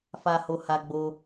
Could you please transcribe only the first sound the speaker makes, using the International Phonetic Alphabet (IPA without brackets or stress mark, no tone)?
f